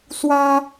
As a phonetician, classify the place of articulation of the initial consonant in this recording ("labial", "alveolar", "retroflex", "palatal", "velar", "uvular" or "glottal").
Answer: alveolar